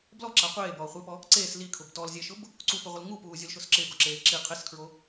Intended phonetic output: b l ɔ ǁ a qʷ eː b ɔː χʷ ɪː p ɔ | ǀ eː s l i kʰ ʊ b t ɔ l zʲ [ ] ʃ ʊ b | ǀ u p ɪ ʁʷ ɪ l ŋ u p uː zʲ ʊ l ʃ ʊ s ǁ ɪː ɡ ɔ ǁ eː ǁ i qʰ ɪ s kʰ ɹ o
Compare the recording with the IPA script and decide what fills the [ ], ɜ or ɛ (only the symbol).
ɛ